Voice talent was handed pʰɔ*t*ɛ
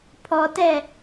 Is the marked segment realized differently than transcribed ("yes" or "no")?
no